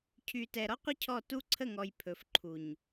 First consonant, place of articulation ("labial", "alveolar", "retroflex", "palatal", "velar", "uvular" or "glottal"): palatal